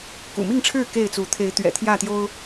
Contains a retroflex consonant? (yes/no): yes